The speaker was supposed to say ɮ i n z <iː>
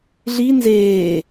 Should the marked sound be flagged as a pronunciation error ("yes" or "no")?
yes